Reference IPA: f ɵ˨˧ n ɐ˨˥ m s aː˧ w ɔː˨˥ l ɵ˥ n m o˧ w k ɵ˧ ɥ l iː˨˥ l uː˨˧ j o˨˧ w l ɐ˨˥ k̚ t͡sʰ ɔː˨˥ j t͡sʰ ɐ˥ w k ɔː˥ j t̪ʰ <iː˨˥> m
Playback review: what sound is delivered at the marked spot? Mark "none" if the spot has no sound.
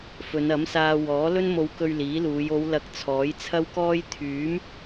yː˨˥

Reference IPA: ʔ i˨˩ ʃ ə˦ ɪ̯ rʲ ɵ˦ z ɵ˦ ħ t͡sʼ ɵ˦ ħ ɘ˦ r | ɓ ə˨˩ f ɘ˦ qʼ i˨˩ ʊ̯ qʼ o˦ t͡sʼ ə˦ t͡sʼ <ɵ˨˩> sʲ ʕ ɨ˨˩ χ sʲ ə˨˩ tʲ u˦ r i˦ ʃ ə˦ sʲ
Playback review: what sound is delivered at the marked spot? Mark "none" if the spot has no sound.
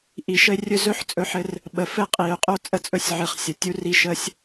ɵ˦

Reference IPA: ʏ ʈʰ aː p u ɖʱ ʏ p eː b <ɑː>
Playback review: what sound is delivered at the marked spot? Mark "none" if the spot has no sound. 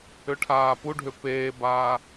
aː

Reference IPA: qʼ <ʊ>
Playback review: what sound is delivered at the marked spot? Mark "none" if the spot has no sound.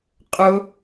ʊ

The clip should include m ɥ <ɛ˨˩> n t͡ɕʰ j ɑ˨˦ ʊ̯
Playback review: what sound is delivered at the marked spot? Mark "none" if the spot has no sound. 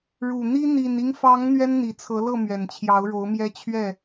ɛ˨˩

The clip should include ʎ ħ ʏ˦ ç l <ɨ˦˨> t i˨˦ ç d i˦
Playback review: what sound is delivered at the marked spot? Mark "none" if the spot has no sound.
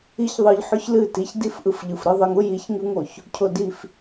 ɨ˦˨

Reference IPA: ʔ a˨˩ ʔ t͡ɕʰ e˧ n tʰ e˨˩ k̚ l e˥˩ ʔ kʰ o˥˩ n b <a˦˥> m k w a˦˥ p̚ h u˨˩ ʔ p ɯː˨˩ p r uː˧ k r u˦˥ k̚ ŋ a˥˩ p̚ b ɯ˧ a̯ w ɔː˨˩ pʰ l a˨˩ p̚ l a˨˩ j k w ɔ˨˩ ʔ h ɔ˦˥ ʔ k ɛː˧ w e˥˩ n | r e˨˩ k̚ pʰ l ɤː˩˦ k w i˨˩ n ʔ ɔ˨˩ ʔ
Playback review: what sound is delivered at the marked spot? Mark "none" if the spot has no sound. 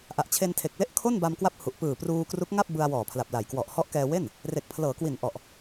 a˧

